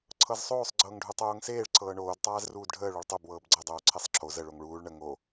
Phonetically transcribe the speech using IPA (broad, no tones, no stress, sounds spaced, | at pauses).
ǀʰ ɤ z sˤ oː sˤ ɡ͡ǀ ɤː ŋ ɖʱ u tˤ oː ŋ s eː ɭ ǀʰ ɤː ɳ oː d tˤ aː z r uː d ɖʱ əː ɭ o ɭ tˤ o b w ɤː b ɡ͡ǀ ɤ dˤ oː ǀʰ e sˤ ǁʰ o z ə ɭ o ŋ ɭ uː ɭ ɳ ə ŋ o